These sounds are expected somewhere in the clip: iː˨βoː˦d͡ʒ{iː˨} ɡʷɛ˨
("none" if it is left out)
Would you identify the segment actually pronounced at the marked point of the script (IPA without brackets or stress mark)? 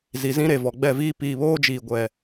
iː˨